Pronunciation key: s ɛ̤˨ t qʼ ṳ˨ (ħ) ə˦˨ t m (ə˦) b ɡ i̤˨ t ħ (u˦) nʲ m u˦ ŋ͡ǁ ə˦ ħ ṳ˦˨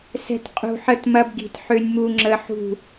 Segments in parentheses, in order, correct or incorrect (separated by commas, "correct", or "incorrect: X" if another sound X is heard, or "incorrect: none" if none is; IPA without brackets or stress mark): correct, incorrect: ɐ˦, incorrect: ø˦